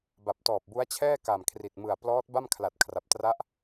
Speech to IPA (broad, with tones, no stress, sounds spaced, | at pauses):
b a˨˩ p̚ t ɔː˨˩ p̚ b u˦˥ a̯ t͡ɕʰ ɛː˥˩ k a˨˩ m kʰ r i˨˩ t̚ m ɯ˨˩ a̯ p l ɔː˦˥ t̚ b a˥˩ m kʰ l a˨˩ t̚ kʰ r a˨˩ p̚ t r a˦˥ ʔ